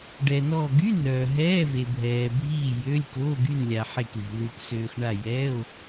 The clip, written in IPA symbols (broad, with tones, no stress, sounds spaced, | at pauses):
ɖ ɛ˨ n ɔː˦˨ ɡ y˧˥˧ n œː˨ ɦ ɛː˧˥˧ v e˨ bʱ ɛː˨ bʱ iː˦˨ j ø˧˥˧ lʲ k oː˧˥˧ ɡ y˦˨ n lʲ a˨ ħ e˦˨ k l i̤˨ l u˨ k s øː˨ x ɳ a˦˨ j ɛː˧˥˧ o̯